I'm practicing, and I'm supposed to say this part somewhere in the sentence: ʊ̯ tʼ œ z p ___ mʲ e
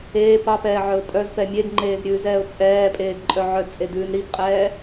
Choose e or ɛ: ɛ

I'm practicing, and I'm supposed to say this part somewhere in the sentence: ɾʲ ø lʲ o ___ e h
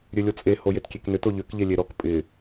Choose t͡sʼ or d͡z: t͡sʼ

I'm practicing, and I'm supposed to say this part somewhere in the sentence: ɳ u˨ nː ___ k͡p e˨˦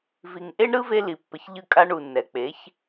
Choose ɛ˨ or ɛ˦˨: ɛ˨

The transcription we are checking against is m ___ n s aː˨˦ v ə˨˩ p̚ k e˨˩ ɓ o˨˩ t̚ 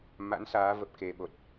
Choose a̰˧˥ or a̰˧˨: a̰˧˥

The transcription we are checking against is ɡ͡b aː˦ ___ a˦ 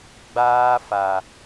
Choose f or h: f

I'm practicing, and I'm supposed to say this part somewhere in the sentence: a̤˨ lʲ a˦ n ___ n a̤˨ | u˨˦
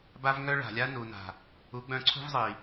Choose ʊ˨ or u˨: u˨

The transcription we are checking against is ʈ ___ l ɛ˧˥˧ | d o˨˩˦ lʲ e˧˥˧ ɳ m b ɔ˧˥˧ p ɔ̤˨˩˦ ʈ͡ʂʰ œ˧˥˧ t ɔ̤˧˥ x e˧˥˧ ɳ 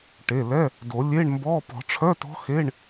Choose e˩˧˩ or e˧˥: e˩˧˩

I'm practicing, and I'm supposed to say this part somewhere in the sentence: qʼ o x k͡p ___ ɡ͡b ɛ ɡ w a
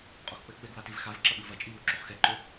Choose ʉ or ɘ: ɘ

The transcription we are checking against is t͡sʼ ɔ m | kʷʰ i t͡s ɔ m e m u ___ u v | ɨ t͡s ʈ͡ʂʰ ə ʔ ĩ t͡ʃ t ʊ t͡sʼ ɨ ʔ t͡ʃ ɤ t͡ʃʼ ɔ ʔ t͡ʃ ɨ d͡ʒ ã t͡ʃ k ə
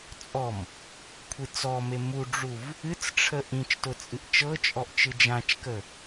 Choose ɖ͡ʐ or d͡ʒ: ɖ͡ʐ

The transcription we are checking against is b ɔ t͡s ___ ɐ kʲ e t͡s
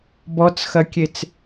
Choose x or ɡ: x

